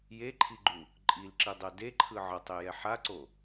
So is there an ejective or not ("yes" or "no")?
yes